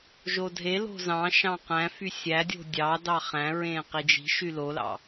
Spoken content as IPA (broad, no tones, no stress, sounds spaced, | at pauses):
ʒ o dʱ e l o̤ z ɑ̃ ʃ ɑ̃ q æ̃ f y sʲ æ dʲ o̤ dʲ ɑ d ɑ χ æ̃ ɹ ẽ q i d͡ʒ i̤ ʃ y l o l ɑ̰